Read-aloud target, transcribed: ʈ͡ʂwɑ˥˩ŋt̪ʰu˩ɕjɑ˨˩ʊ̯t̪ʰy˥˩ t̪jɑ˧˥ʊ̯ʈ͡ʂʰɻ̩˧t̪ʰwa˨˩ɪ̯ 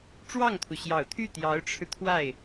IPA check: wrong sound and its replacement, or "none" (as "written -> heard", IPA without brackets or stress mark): a˨˩ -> a˥˩